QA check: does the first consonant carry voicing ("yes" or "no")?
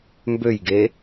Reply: yes